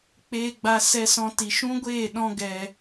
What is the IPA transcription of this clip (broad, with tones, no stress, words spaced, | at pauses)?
k͡peː˦ɡ͡ba˦ sɛ˦sɔ̃˦ti˧ ʃũ˦ɡʷeː˦˨ ɗɔ̃˦ɡɛ˧